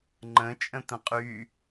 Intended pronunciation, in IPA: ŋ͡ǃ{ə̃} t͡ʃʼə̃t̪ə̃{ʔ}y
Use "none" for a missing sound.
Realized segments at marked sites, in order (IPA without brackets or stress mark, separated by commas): ə̃, qʼ